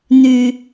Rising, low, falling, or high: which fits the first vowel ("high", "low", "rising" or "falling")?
low